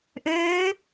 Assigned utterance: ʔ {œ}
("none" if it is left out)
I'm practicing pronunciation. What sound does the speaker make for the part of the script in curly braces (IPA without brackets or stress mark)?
ø